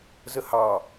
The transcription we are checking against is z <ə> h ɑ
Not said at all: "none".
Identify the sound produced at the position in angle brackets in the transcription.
ə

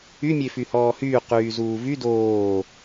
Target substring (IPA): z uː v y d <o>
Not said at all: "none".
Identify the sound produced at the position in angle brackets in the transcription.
oː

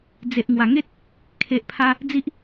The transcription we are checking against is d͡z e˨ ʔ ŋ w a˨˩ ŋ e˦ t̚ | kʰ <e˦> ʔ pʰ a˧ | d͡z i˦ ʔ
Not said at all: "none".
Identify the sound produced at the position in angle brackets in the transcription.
e˨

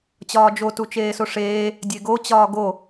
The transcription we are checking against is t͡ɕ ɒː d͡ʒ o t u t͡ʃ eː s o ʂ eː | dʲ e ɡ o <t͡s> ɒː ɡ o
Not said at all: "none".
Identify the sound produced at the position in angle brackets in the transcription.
t͡ɕ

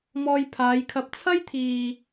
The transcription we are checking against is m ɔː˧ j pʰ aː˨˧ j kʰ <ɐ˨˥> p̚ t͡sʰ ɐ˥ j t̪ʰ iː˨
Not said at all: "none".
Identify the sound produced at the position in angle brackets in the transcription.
ɐ˧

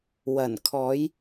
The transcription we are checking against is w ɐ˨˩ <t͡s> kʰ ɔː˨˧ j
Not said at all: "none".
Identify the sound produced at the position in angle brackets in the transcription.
n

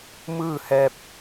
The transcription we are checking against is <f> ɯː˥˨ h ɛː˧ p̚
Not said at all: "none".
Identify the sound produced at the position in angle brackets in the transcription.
m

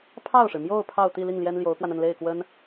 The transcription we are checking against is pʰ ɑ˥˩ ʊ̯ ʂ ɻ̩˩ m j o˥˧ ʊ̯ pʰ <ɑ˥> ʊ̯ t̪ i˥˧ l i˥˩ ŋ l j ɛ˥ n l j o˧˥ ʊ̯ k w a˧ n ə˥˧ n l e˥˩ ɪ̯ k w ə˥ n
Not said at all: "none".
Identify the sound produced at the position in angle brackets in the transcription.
ɑ˥˧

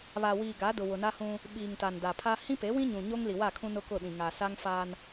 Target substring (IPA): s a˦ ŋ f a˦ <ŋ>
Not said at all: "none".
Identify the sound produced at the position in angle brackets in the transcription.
n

